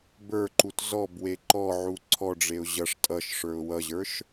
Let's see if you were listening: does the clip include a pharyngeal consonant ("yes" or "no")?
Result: yes